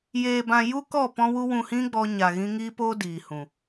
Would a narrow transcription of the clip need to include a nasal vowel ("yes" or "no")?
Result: yes